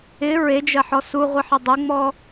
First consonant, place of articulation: alveolar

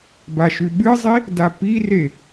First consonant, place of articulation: labial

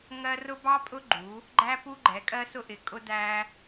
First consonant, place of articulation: velar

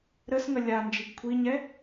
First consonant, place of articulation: alveolar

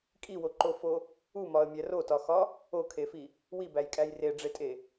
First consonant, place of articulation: velar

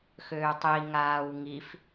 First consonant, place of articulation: velar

